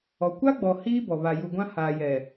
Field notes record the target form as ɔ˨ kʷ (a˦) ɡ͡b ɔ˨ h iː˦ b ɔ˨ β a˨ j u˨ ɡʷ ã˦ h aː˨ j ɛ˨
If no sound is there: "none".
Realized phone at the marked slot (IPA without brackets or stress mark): a˦